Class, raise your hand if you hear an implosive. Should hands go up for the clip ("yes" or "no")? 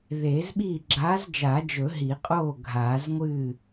yes